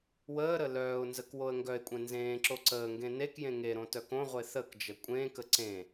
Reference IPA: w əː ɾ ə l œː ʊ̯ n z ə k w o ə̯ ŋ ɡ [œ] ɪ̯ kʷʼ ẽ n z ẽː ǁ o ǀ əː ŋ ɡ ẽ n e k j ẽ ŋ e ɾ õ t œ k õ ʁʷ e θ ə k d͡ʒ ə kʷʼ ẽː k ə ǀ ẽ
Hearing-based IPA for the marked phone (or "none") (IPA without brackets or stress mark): œ